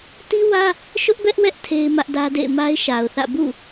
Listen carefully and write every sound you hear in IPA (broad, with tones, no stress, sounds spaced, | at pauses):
t i˦ w ä˦ | ʃ ʊ˦ ʔ b ɛ˦ ʔ w ɛ˦ ʔ tʰ e˦ ɪ̯ m ä˦ ʔ d ä˦ d ḛ˦˨ ɪ̯ m a˦ ɪ̯ ʃ a˨ ʊ̯ θ ä̰˦˨ b ṵ˦˨